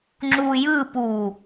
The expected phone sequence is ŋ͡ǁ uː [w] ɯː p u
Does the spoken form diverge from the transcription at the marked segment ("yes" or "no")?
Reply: yes